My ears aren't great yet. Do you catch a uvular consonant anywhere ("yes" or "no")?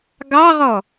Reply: yes